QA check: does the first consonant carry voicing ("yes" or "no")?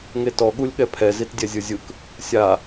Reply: yes